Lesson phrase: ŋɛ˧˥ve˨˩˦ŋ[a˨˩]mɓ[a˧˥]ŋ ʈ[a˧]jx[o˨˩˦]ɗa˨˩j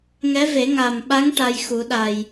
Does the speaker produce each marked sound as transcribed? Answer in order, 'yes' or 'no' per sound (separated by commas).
yes, yes, yes, no